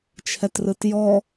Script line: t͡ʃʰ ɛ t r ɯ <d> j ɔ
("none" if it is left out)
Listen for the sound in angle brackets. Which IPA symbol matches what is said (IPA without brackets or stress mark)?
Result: t